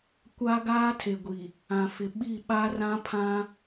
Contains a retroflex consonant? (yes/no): no